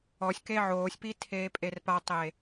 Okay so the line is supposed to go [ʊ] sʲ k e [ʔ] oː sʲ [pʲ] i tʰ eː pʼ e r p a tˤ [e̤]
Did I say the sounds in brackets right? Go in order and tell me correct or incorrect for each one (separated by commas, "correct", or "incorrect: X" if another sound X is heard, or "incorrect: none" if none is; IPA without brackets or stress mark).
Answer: incorrect: ɔ, incorrect: ʕ, incorrect: p, incorrect: e